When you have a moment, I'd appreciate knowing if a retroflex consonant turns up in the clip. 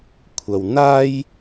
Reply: no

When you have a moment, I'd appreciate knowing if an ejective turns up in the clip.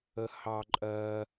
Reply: yes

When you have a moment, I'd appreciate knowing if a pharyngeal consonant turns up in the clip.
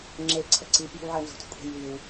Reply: yes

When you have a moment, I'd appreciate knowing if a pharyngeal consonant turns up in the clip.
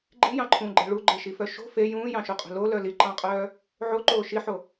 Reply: yes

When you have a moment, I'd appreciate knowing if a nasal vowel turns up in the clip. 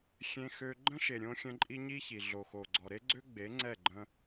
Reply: yes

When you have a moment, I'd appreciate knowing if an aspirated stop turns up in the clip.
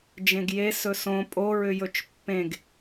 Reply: no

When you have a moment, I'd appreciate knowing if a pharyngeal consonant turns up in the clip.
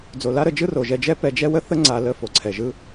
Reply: no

